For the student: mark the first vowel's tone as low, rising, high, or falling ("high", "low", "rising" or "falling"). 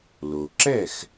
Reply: low